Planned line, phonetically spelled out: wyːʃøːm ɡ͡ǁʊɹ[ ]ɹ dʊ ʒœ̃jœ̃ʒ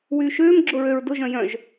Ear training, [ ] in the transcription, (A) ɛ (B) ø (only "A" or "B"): B